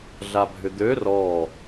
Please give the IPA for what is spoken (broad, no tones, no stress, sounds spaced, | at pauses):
ɮ a bʱ ʏ d̪ ø r ɔ